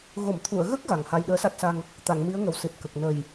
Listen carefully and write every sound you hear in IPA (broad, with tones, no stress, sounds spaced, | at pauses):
ɣ o˨˩˨ m t̪ʰ u˨˩˨ ə̯ ɣ ə˦˥ k̚ ɣ a˨˩ ŋ h a˧ j ɗ əː˧˥ s a˦˥ t̚ s a˧ ŋ | t̪ a˨˩˨ ŋ m i˧˥ ə̯ ŋ ə˨˩ w s ɨ˨˩ t̚ k ə˨˩ k̚ n ə˨˩ j